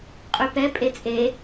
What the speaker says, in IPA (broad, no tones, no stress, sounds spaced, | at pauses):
qʼ y p ɛ pʼ e t͡sʼ e